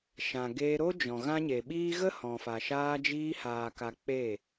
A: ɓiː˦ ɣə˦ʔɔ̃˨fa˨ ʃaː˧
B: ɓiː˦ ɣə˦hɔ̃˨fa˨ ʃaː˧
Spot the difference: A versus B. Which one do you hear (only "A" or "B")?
B